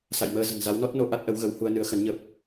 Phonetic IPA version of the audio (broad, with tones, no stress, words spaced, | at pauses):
sa̰˧˨jməː˧ zə̤˨˩nza˨˦wnɔ˦˥t̚no˧ ʔa˦˥t̚ʔə˨˦wɣə˨˦w hu˧ə̯nɨ˨˦ə̯xə˨˦n ɲə˦˥p̚